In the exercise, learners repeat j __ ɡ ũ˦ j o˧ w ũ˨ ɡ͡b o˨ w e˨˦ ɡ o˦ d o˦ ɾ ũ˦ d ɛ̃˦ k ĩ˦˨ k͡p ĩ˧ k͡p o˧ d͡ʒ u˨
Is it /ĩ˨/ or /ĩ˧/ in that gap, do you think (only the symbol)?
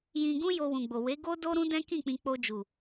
ĩ˧